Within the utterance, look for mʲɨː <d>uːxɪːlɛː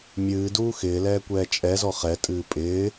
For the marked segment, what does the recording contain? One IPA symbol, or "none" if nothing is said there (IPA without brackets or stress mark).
d